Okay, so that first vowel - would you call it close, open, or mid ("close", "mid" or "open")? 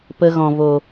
mid